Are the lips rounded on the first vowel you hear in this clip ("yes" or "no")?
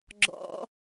yes